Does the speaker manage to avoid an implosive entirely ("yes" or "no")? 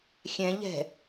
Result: yes